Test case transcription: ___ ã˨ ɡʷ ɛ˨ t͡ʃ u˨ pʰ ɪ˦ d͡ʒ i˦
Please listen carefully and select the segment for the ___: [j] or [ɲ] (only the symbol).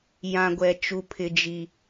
j